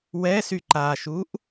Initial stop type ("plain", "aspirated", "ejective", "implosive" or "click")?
click